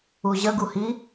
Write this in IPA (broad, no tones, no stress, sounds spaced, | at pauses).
u ʑ ə ɡ u h i